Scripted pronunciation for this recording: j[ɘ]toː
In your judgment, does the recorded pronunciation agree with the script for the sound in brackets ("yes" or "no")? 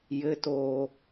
yes